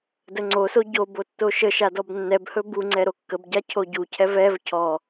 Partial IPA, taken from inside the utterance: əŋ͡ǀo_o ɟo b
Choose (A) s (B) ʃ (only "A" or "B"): A